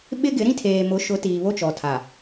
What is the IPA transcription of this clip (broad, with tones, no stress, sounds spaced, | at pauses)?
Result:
ɓ ɪ˦ ɡ ɪ˨˦ ɾ ĩ˦ tʰ eː˨ m ʊ˨˦ ʃ ʊ˨˦ t iː˨ β o˦ t͡ʃ ɔ˨ tʰ a˨